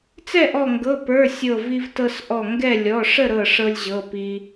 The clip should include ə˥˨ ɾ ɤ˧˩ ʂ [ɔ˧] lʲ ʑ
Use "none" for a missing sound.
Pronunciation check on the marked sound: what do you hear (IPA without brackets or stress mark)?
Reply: ɤ˧